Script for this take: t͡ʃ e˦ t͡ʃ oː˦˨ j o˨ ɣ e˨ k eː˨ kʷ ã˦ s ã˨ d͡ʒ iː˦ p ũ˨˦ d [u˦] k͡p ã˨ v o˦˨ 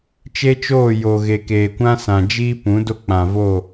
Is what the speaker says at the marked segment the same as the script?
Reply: no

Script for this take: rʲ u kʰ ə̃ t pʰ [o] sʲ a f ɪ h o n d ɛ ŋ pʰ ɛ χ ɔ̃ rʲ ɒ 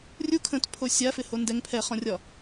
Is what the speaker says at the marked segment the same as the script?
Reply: yes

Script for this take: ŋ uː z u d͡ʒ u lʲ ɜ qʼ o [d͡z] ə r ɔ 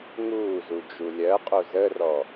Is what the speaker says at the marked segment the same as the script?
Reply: no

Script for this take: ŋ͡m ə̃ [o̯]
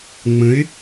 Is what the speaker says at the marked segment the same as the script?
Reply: no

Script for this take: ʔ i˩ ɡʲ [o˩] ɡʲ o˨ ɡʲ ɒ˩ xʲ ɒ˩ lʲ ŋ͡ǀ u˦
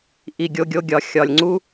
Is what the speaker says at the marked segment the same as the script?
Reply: no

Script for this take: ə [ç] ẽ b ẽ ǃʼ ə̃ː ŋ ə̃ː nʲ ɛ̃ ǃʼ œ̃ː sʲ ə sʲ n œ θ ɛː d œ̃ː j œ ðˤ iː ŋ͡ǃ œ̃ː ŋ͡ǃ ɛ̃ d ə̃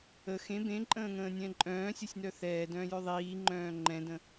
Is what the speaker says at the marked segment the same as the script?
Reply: no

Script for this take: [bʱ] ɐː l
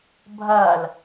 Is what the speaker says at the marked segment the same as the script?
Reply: yes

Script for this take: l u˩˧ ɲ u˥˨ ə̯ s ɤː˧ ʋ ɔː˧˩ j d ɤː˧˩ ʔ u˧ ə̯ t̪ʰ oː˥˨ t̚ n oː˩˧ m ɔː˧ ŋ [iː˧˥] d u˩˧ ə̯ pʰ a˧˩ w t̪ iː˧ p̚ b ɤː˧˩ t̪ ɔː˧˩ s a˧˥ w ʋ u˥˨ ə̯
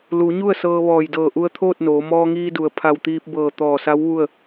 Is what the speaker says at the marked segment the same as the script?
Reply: no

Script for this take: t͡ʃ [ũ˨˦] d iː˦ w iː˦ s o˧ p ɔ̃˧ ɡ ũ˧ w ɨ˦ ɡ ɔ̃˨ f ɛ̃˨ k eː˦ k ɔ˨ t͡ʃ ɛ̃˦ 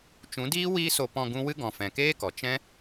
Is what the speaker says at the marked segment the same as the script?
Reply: yes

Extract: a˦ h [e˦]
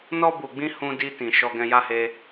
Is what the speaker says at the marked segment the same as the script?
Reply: yes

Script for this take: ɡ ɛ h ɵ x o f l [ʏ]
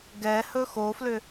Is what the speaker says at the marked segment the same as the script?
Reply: yes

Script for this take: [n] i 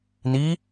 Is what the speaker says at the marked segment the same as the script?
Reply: yes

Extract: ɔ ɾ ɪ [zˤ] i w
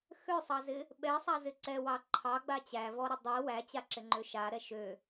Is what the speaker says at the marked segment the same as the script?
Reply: no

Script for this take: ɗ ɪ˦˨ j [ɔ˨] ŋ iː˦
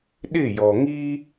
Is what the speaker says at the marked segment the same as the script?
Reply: yes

